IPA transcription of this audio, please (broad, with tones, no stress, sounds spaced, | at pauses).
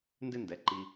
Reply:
n d ɪ˥ n d ɛ˩˥ ǃ i˧